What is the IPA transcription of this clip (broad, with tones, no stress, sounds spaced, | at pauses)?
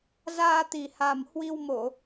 z aː˧ t̪ i˨˩ h a˨˩ m h w i˧ w m o˧˩˨